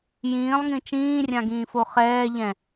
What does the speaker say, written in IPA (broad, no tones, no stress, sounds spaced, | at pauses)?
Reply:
j ĩː lˠ ŋ ĩ t͡ʃ ĩː rʲ ã ɡ ĩː f o χ ɛː ʎ ɛ̃